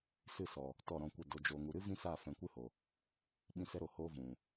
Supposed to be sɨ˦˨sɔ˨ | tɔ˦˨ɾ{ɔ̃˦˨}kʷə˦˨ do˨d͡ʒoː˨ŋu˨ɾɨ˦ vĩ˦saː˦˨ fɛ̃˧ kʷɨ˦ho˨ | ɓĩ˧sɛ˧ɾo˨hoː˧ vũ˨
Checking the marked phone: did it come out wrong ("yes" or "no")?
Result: no